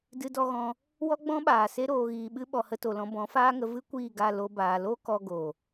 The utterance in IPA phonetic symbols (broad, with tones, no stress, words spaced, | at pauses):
dɨ˧dɔ˧ɣɔ̃˧ | wɔ˦ɡ͡bɔ̃˦ɓaː˨ se˧ɾoː˨ɣiː˨ɓɨ˧ ɓɔ˨hə˧to˨lɔ̃˧ bɔ̃˨˦faː˦ŋə˧ vɨ˦kʷiː˦˨ɡa˦˨ lo˧baː˨ lo˦kɔ˧ɡo˨